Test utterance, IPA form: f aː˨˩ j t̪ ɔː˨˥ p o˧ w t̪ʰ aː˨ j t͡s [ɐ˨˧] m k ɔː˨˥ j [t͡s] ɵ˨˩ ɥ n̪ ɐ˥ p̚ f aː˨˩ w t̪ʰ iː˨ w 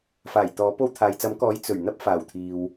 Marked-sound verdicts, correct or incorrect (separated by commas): incorrect, correct